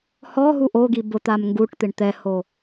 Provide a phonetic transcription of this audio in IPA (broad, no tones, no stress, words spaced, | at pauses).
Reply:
hɔɦu ʔoɡi bʊt̪am ŋɡuʈt̪ɪɳ t̪ɛho